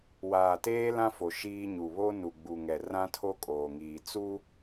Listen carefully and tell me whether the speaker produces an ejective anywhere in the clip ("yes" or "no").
yes